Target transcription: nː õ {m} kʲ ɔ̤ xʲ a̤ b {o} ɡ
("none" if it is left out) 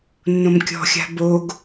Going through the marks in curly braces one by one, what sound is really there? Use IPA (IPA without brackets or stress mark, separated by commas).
m, o